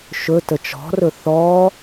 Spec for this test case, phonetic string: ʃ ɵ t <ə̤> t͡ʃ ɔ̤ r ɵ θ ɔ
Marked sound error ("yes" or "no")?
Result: yes